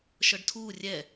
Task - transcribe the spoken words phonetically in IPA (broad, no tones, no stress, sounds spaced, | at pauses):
ʃ ɤ ɖ tʰ uː rʲ ɛ